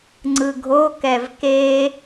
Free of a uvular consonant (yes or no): yes